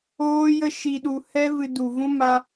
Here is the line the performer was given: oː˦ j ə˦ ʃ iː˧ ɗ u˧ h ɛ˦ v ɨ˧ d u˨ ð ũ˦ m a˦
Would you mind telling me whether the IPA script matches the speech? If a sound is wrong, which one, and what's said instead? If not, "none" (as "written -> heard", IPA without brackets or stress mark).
ð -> v